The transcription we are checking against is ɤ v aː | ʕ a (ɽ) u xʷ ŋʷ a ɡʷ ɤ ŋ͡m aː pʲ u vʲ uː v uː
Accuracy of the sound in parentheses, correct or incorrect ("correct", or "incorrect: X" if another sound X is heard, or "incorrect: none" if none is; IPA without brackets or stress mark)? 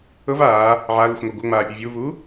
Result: incorrect: l